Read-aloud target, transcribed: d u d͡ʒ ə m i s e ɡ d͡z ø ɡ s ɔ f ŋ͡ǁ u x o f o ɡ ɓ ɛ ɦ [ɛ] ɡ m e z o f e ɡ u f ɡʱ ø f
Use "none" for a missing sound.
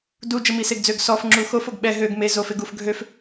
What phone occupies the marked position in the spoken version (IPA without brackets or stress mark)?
ø